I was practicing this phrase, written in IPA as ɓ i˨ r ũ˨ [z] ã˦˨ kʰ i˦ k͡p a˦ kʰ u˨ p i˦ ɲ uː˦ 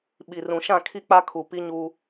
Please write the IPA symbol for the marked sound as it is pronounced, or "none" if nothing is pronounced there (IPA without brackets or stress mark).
ʃ